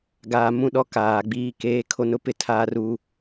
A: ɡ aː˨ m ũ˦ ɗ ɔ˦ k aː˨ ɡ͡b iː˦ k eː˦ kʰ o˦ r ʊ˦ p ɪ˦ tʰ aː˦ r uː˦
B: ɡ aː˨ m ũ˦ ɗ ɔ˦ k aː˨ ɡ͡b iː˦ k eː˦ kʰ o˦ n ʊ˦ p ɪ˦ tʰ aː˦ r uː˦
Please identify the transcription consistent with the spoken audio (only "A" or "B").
B